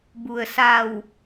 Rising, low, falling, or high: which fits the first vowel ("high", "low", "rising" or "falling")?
low